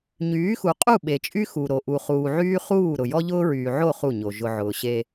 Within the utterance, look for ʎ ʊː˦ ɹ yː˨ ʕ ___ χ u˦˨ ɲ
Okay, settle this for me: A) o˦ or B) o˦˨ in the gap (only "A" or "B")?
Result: B